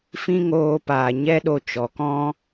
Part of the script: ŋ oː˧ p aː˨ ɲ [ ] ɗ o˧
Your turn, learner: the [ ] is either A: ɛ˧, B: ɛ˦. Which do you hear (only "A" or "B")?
B